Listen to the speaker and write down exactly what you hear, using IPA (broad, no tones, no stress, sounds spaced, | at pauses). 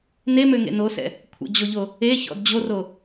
n e m ø ŋ ḛ n o s ɛ̰ | kʷʰ ə̰ d͡ʑ o ʎ o | e ç ɔ̰ d d͡ʑ o r o